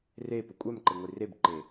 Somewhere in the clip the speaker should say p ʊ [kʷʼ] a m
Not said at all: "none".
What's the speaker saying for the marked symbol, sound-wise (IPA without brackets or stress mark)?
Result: kʷʼ